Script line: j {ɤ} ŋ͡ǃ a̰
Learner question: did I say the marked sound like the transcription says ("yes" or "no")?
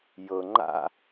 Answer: yes